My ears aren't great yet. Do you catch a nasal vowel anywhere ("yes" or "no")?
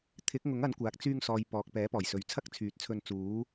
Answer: no